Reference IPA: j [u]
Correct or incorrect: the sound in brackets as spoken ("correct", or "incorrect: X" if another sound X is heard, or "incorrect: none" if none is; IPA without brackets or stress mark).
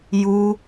correct